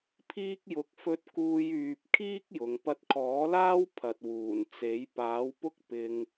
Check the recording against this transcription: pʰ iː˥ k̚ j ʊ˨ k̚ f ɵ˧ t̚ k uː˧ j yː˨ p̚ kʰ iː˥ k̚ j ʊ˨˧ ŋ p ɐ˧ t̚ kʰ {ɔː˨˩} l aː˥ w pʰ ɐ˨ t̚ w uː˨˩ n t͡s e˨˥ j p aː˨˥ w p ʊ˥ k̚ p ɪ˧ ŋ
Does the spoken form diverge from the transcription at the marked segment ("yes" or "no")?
yes